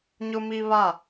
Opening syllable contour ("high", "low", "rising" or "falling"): high